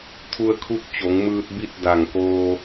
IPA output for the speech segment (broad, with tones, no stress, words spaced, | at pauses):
t̪ʰu˧ə̯kʰu˧˥k̚t͡ɕo˩˧ŋmɯː˧t̚ bi˥˨t̚da˧˩ŋkoː˧